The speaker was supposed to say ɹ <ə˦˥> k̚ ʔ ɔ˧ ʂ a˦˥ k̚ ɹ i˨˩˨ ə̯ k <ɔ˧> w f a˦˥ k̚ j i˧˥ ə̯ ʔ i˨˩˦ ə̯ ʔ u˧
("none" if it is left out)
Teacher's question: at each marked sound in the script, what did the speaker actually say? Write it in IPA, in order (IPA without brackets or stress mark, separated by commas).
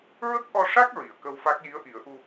ə˦˥, ə˧